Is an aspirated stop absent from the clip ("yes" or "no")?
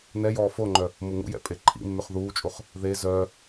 no